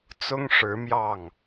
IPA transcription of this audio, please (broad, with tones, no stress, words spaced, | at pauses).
t͡sʊ˥ŋʂɻ̩˧˥mjɑ˥˩ŋ